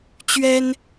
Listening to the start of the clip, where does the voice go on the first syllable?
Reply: high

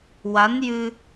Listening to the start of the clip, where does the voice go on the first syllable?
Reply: rising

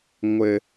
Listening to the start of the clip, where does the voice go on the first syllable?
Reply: high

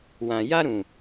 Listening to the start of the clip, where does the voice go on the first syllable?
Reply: low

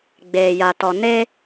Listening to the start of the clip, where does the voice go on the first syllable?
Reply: low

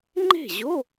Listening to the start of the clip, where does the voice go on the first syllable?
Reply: falling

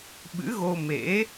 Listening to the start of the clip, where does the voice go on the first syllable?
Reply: rising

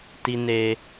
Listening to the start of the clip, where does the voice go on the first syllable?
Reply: high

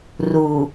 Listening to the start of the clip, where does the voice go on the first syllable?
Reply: low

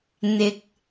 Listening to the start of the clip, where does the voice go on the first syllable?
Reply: low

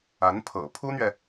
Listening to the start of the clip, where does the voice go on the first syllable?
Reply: rising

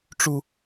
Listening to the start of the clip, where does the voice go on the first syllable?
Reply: high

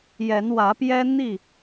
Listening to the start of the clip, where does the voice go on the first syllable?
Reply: rising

